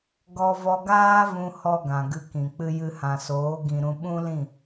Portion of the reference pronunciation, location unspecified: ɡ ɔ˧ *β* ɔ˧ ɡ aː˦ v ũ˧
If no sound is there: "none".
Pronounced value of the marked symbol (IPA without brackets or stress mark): v